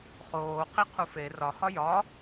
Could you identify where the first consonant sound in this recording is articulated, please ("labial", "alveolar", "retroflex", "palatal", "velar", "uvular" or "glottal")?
uvular